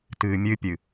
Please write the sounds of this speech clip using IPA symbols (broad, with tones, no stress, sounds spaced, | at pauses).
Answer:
t ɨː˨ mʲ ɨː˦ pʲ ɨ˨